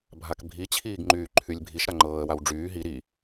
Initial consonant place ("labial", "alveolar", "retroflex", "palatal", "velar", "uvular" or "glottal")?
labial